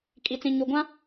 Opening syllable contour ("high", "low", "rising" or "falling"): low